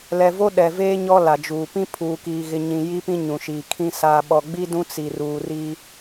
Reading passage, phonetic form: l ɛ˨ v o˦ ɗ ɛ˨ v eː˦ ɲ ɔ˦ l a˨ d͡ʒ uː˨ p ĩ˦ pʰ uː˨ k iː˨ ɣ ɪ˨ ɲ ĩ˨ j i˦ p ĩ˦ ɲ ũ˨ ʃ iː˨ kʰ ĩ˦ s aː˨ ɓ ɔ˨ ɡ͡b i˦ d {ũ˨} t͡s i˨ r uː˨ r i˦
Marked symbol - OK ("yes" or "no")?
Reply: no